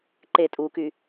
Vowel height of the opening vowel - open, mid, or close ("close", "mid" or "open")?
mid